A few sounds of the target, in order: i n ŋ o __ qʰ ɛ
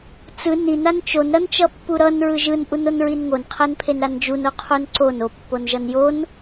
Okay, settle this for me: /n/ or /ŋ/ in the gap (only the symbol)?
n